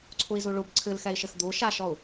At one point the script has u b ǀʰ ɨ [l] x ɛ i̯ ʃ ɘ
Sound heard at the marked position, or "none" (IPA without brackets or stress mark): l